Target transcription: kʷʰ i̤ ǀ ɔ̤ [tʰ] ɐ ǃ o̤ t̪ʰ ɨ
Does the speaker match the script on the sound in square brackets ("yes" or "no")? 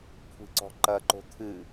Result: no